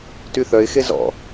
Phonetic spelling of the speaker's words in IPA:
t y θ œ ɪ̯ x e z ɔ̰

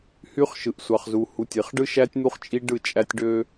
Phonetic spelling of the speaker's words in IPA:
h y˦ χ ʃ ɯ˨ ʔ sʷ ɑ˨ χ z u˨ h u˨ tʲ e˨ χ ɖ ɯ˦ ʃ æ˦ tʲ n̪ u˦ χ t͡ʃʼ i˦ ɖ ɯ˦˨ t͡ʃʼ æ˦ tʲ ɖ ø˦

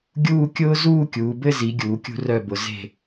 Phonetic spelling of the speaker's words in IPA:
ɡʲ uː˥˧ kʲ ʊː˥ z uː˥˧ kʲ uː˩˧ b ɘ˥˧ z i˩˧ ɡʲ uː˩˧ kʲ ṳ˧ r œ˧˩ b ʊ˩˧ z e̤˧˩

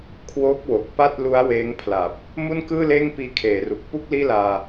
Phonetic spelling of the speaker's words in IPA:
kʰ w o˦˥ k̚ w o˨˩ k̚ p a˥˩ t̚ l u˦˥ a̯ w eː˦˥ ŋ pʰ l a˨˩ p̚ | m u˥˩ n k ɯː˥˩ l eː˥˩ ŋ p iː˧ kʰ eː˩˦ r u˨˩ k̚ p u˥˩ k̚ l iː˥˩ l aː˧

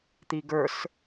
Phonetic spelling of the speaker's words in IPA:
t̪ i ɡ ə˞ s

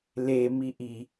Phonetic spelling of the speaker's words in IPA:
l e m i ʔ i

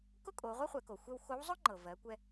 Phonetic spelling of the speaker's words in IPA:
k ʊ˥ kʼ o˩˧ ʁʷ ɛ˥ χʷ ɛ˩˧ k o˩ xʷ ɛ˧ w x o˧˥ w zˤ ʊ˥ ŋ͡ǃ ɤ˩ v ɜ˩˧ kʷ ɛ˧

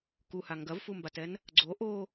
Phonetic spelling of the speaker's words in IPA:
k u h a ŋ ɡ ɐ v f u m b a t ɛ n | ɡ͡ǀ o ʔ o

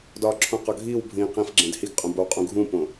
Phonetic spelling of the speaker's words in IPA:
d ɒ ǁʰ ũ q ɒ ɡʱ iː w bʱ ĩː q ĩ f ɡ͡ǁ ẽ d h i ɡ qʼ ũ b o w qʼ ũ ɡʱ ũ p õ

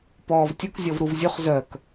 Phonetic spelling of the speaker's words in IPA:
p ɔː v tʲ ʊ k zʲ ɔ v ɾ u v zʲ ʊ χ z œ k

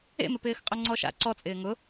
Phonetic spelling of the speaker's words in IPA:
ḛ m ɪ p ɪː x qʼ ʊ ŋ͡ǀ ɔ ʃ a̰ ǀ ɔ t͡sʼ ɪː ŋ ʊ

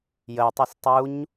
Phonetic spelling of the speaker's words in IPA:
j ə ʊ̯ tˤ ɛ s tˤ u ɲ

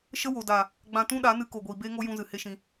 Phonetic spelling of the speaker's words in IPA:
ʃ ə˦ w o˨ d a˨ | ɡ͡b ã˧ t ũ˦ ɗ a˨˦ n ɨ˧ k o˨ ɡʷ iː˨ b eː˦ ŋ o˦ j ũ˧ z ɨ˨ h e˦ ʃ ĩ˧

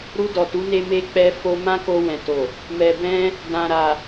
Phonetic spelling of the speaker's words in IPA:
ɾ u˧ d ɔ˨ t u˨˦ n e˧ m e˧ k͡p ɛ˦ f o˧ m ã˦ k o˧ w ɛ̃˨ t o˨ | m ɛ˨ b ɛ̃˧ | d ã˨ ɾ a˨

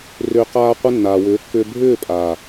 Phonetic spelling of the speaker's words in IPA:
r ʏː˧ q aː˧ qʷ ə˧ nː aː˨ w ʏː˨˦ kː ʏː˧ bʱ ʏː˦˨ pʼ aː˨

